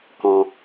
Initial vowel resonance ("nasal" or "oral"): nasal